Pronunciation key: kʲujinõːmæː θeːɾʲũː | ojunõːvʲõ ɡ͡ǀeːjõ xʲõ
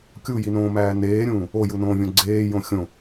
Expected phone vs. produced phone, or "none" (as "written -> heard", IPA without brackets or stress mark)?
θ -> n